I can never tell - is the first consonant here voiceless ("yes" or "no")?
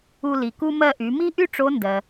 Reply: no